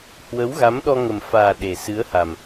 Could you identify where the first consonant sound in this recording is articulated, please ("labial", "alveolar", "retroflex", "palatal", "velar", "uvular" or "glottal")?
glottal